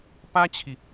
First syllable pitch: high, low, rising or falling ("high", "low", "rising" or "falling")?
high